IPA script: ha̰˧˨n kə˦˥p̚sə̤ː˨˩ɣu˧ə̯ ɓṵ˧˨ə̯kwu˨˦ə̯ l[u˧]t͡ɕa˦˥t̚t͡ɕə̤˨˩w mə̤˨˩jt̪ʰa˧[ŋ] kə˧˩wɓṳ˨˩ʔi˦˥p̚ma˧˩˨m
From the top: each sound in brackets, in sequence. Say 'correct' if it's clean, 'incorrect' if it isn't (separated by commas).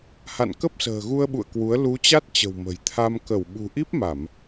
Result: incorrect, incorrect